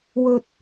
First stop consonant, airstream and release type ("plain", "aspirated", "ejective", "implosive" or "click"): plain